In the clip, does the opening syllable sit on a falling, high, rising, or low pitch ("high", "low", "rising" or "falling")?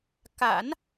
low